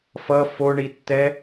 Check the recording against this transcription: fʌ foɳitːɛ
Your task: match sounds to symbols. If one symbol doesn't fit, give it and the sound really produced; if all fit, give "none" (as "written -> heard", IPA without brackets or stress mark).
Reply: none